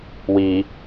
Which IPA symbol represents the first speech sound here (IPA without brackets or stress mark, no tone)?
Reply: w